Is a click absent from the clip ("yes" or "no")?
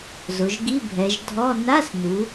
yes